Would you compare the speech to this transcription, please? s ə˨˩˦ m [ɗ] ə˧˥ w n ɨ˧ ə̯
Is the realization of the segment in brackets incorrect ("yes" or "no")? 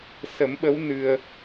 yes